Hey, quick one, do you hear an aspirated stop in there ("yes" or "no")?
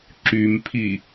yes